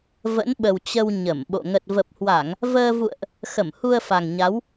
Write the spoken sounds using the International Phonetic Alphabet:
v ə̰˧˥ n ɓ ə˨˩ w t͡ɕ ə˧ w ɲ ə˧˩ m ɓ o̰˧˨ ŋ ə˨˩ t̚ v ə˨˩ p̚ h w a˧˩˨ ŋ | v əː˧ v ṵ˧˨ ə̯ ʔ | x ə˧˩ m h u˧ ə̯ f a˨˩ ŋ ɲ a˨˦ w

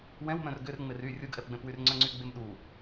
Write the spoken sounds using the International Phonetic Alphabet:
w ɛ̃ w m œ̃ r ɡ ʏ r ŋ͡m ɪ r y rʲ u ɡ ʔ ɛ p ɡ͡b ɛ̃ p w y r ŋ͡ǀ œ̃ ŋ͡ǀ y ɡ͡b e m ɗ u

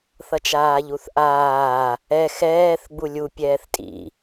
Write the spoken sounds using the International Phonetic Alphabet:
θ ʌ t͡ʃ aː ʎ u θ ʔ aː | ɛ x ɛː θ ɡ͡b u lʲ u pʲ ɛː θ tʼ ḭ

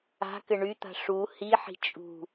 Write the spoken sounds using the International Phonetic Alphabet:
a̤ k ɘ ɳ y t̪ a̤ ʂ u h i ħ i̤ t͡ʃʼ ṳ

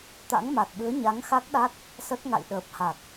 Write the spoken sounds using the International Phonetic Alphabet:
t̪ a̰˧˥ ŋ m a˨˩ t̚ ɓ ɨ˨˦ ə̯ ɲ a˨˦ ŋ x a˦˥ k̚ ɗ a˦˥ t̚ | s ə˦˥ t̚ ŋ a̰˧˨ j ɗ əː˨˩ p̚ h a˨˩ k̚

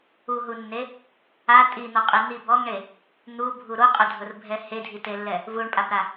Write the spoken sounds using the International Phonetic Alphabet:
u ɦ u nː e | a tʼ i n̪ ɔ qʼ i n̪ i b ɔ ŋ ɳ e | n̪ u bʱ u ɾ o qʼ ʊ dʱ ʊ r bʱ ɛ h e dʱ i t e lː ɛ | v u ɳ pʼ a b ɾ a

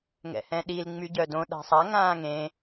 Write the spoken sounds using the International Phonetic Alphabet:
ŋ ɛ̰ h ɛ̃ ɗ i l ŋ͡m y ɟ œ d õ ɗ a̤ sˤ a ŋ ãː ŋ ẽ

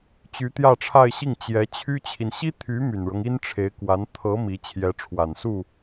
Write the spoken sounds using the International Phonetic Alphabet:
t͡ɕ y˧˥ t̪ j ä˥˧ ʈ͡ʂʰ a˥˧ ɪ̯ ɕ i˥˩ ŋ t͡ɕ j ɛ˧˥ t͡ɕʰ y˥ t͡ɕʰ i˨ n ɕ i˥ t̪ʰ y˧˥ m y˨˩ n ɻ ɤ˦ ŋ i˥ n ʈ͡ʂʰ e˧˥ ɪ̯ k w a˧˥ n t̪ʰ ɤ˧˥ m i˧˥ t͡ɕʰ j ɛ˧˥ ʈ͡ʂʰ w a˨˩ n s u˥˩

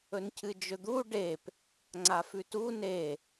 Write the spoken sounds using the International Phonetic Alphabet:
ɵ n cʰ ɨ d͡ʒ ɵ d̪ u ɖ e p | ŋ͡ǀ a f ʉ t u n e

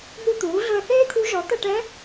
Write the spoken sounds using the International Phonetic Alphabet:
n̪ u˦˨ t̪ uː˩˥ ɮ ɵ˦˨ ə̯ θ eː˥ t̪ʰ u˧˥ ʒ ɔ˩˥ t̪ ʌ˦˨ ʈ ɛ˧˥

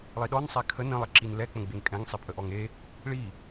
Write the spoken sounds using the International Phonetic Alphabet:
lˠ i ɗ ɔ n sˤ e kʰ ə n ə̃ lˠ ə ǁ i n l ɛ k͡p ə̃ ɡ͡b e ŋ kʼ ɛ̃ ŋ sˤ i pʼ ə ʔ ɔ ŋ e | ɭ i

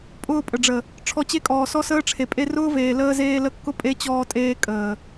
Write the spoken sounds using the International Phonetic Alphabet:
pʼ ʊː˧ pʼ ə˨ ɖ͡ʐ ə˨ | ʈ͡ʂʰ ɔ˧ t͡ɕ e˦ kʼ ɔː˨ s ɔ˧ s əː˧ ʈ͡ʂʰ e˨ pʼ e˧ r ʊː˦ v eː˨ l əː˧ z eː˧ l ə˧ kː ʊ˦ pʼ e˦ t͡ɕ ɔː˧ tʼ eː˧ kʼ əː˨

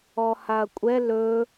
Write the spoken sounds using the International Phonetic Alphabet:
ɔ h a ɐ̯ kʷʼ ɛ l ɵ

